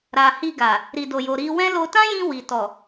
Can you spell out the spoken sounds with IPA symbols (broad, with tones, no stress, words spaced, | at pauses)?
ɾa˨hi˧ɡa˨ | ɾi˨do˨jo˨ ɾi˧wɛ̃˦ lo˧tã˦jĩ˧ wi˨tɔ˨